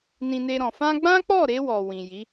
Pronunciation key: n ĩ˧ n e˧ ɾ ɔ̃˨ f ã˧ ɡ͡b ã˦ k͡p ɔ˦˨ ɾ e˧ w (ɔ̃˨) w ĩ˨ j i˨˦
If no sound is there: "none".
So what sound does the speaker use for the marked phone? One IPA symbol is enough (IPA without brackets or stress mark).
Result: ɔ˨